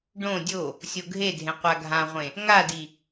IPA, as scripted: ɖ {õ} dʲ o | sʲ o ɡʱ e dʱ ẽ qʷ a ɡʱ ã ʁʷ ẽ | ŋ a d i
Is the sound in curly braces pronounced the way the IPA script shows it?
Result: yes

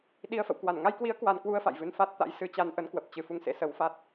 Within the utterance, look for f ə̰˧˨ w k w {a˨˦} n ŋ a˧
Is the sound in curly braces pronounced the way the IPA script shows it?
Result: no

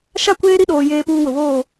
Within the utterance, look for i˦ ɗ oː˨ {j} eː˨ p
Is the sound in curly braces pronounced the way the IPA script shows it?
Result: yes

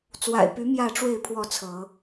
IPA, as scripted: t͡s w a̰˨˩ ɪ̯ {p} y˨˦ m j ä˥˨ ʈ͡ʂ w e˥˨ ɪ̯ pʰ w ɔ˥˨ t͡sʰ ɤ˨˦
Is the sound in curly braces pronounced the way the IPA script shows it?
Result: yes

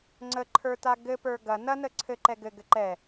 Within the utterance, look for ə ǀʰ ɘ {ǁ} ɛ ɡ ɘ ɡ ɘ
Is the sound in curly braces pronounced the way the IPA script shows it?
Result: no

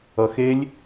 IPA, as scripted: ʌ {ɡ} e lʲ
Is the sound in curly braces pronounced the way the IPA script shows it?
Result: no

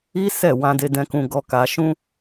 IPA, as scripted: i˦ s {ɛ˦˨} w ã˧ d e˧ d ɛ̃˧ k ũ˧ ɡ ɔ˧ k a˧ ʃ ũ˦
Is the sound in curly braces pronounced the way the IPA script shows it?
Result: yes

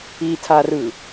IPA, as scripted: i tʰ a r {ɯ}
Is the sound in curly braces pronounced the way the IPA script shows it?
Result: yes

